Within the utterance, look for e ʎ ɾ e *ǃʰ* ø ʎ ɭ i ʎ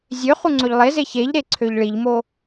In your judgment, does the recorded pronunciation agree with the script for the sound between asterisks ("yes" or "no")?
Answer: no